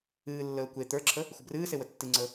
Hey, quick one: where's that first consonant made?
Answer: tongue tip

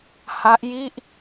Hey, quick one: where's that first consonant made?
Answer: throat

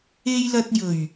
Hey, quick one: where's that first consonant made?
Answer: palate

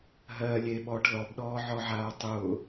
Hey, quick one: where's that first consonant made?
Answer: throat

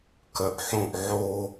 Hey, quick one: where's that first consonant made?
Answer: velum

